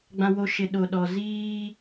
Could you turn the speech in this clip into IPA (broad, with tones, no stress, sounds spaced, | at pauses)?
ɡ͡b ã˨ w o˨ ʃ ɪ˨ ɗ o˨ ɗ ɔ˨ z iː˦